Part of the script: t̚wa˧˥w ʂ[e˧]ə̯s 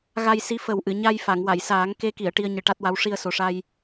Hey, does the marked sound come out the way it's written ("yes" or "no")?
no